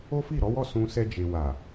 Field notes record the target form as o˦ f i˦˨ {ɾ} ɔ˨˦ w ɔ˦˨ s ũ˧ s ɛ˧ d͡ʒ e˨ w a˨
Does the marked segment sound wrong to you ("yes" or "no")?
no